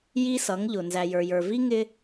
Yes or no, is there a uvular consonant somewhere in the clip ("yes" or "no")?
no